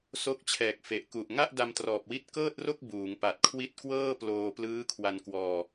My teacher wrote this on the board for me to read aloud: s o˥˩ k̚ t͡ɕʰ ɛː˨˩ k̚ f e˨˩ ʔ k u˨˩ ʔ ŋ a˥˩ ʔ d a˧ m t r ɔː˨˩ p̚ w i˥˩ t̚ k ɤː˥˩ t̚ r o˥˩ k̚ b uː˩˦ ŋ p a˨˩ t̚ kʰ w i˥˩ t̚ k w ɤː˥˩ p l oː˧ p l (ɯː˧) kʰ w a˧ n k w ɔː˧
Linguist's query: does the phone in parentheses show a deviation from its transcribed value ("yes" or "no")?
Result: yes